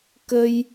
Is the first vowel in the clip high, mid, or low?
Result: mid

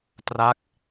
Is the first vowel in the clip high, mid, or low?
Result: low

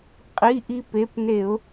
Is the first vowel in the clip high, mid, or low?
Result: high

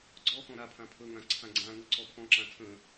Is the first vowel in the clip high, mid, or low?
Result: mid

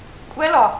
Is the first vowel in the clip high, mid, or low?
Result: low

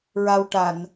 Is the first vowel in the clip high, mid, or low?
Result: low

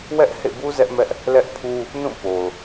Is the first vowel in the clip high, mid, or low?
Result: mid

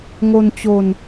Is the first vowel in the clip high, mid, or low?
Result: mid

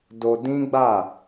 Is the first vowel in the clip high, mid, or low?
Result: mid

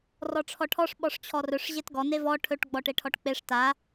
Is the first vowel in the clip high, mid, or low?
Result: mid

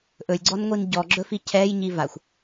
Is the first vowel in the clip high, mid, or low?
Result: mid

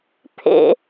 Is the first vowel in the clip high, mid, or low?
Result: mid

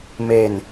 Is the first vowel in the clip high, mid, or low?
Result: mid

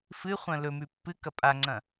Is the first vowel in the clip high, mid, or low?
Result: high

